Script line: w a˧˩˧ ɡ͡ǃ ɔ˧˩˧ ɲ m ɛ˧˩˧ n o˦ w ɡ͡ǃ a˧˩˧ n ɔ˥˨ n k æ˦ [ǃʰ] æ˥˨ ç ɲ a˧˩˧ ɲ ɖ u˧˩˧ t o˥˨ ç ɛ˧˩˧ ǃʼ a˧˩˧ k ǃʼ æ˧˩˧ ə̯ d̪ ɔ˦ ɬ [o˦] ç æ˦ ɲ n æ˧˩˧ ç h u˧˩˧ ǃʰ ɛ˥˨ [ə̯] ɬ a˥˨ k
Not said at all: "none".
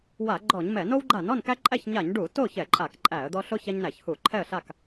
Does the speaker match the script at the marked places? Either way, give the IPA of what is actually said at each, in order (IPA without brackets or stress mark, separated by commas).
ǃʼ, o˦, ə̯